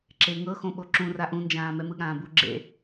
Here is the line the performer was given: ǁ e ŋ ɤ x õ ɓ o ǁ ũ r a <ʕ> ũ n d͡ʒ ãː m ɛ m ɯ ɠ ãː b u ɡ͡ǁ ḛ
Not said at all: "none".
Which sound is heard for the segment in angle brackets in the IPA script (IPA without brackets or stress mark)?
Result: ʔ